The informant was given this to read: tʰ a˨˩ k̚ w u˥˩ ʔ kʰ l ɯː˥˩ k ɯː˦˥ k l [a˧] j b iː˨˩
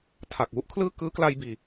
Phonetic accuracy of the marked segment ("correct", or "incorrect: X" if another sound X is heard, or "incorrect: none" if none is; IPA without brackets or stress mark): correct